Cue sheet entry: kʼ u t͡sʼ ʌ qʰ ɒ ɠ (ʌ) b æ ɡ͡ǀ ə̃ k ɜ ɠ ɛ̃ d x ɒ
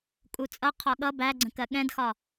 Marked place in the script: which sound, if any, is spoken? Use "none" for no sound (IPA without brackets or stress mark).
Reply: ʌ